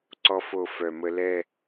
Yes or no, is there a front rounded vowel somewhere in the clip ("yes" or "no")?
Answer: yes